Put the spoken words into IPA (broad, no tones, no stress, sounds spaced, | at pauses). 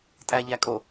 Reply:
tʼ æ ʎ æ kʼ o